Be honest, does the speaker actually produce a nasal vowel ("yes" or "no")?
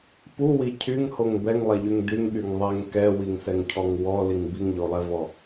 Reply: no